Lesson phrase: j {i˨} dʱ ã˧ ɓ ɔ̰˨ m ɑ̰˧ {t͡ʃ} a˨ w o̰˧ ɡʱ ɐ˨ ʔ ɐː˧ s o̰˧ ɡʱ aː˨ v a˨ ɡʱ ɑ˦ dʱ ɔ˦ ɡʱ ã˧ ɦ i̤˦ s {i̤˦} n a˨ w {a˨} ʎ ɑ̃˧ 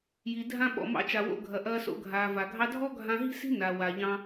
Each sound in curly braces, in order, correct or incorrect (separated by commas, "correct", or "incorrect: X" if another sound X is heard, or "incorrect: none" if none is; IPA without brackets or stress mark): correct, correct, correct, correct